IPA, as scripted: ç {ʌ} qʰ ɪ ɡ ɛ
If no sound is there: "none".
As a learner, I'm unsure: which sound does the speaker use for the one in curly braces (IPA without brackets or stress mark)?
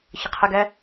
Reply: ə